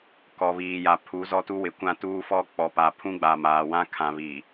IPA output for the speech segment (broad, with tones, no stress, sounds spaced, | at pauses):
k ɔ˨ β iː˨ j a˨ pʰ u˨˦ z ɔ˦ t u˦ w ɪ˨ kʷ ã˦ t uː˦ f ɔ˦ k͡p ɔ˨ p a˨ pʰ ũ˦ ɡ͡b a˨ m aː˨ w ã˦ kʰ ã˨ β i˨